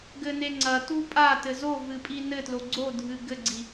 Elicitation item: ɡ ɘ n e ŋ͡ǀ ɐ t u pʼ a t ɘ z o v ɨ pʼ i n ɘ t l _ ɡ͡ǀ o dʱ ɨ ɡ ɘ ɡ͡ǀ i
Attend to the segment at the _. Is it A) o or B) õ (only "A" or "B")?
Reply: A